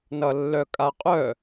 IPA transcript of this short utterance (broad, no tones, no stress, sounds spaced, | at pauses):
n ʌ lː œ kʼ a qʼ œ